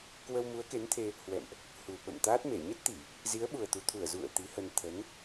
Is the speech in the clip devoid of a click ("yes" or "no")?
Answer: yes